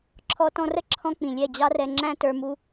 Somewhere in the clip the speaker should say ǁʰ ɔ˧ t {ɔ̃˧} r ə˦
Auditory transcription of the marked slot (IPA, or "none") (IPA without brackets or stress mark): ɔ̃˧